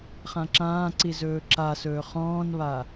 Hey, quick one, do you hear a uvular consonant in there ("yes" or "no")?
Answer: yes